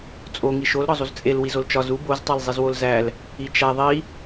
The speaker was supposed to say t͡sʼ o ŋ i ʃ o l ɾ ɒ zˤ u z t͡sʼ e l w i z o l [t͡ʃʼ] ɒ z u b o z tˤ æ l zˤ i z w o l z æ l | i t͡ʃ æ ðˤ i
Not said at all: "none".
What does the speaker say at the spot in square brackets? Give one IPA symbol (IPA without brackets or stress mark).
t͡ʃ